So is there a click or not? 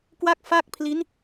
no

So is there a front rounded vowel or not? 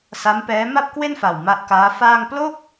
no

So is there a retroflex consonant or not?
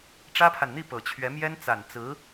yes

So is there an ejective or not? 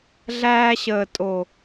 yes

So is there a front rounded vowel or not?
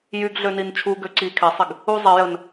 yes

